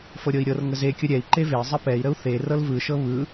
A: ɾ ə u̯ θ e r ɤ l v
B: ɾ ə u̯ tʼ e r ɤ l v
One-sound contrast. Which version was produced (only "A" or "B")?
A